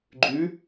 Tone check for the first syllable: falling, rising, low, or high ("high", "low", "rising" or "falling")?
rising